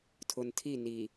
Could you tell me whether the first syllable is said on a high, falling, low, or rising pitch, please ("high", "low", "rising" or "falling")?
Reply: low